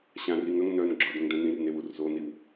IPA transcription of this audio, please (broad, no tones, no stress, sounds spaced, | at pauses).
ɕ ã r i ŋ œ ŋ n œ n ɡ͡ǁ ɒ d ə̃ ŋ d œ̃ n ĩ r n e w u r z o n i w